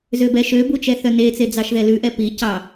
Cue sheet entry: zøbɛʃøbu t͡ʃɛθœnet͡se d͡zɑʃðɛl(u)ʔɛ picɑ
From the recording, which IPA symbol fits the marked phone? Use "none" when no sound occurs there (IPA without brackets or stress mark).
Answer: ʉ